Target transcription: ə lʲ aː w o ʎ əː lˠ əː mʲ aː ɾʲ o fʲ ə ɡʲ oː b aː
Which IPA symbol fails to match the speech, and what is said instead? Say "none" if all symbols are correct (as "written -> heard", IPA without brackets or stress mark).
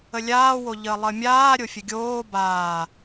none